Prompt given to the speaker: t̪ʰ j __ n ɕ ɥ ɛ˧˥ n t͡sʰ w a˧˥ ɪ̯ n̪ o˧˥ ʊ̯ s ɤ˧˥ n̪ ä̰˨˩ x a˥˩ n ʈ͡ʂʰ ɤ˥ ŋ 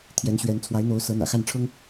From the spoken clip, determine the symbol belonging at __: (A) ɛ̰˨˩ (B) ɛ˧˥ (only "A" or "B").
B